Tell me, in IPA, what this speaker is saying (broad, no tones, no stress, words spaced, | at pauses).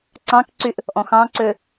ǀɑ̃kǀyʔ | ʔɔ̃xɑ̃ǀø